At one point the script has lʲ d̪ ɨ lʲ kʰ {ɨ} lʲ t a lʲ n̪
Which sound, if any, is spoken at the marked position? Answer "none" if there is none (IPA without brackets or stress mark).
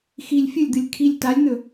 i